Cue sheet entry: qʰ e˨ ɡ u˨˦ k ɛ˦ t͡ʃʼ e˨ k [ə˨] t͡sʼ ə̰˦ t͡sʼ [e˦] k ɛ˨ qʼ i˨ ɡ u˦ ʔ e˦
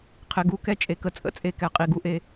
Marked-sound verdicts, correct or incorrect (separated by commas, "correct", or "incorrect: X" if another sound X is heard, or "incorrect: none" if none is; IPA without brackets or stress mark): correct, correct